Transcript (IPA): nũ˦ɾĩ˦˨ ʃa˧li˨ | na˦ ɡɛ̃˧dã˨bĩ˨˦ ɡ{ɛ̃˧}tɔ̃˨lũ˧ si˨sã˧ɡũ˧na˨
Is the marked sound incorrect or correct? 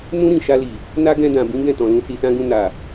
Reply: incorrect